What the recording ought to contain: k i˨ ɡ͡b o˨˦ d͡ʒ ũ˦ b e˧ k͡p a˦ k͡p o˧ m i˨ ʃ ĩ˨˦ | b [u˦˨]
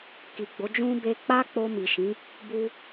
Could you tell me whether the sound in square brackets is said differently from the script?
yes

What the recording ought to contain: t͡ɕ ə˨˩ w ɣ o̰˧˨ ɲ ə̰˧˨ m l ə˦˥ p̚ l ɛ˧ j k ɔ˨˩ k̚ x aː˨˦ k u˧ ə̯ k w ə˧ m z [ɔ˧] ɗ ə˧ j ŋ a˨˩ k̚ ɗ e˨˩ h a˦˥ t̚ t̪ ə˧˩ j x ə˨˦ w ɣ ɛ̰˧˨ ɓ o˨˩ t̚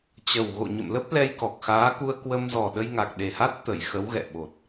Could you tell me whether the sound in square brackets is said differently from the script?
yes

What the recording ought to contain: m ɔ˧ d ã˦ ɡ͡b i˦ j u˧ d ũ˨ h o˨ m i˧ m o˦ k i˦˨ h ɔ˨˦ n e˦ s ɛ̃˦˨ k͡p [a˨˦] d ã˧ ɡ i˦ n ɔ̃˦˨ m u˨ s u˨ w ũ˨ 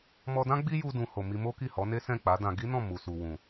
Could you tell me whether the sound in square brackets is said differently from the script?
no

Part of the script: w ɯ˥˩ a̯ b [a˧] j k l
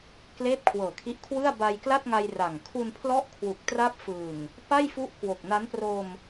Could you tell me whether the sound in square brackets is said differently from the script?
no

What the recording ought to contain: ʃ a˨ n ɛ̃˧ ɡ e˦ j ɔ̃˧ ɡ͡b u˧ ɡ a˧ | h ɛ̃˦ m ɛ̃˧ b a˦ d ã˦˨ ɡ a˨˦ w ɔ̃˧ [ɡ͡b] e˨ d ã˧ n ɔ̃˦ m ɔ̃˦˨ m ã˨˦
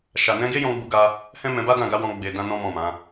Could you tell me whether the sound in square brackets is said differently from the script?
no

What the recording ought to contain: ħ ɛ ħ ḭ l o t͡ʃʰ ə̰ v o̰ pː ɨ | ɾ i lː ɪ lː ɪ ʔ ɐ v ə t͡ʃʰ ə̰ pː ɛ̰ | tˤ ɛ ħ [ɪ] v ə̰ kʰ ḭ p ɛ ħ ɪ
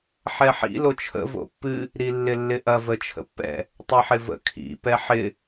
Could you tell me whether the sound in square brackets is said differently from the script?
no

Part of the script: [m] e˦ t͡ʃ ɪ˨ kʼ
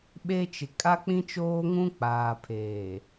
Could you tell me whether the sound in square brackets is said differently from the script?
yes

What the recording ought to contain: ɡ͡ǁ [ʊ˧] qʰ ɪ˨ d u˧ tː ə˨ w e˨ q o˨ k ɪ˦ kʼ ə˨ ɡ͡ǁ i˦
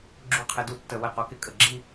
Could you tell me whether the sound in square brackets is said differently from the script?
yes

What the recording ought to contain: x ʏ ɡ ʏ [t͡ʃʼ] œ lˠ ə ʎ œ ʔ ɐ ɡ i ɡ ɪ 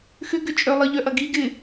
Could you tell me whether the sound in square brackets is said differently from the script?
no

